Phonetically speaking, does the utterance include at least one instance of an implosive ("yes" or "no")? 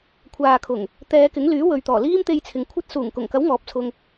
no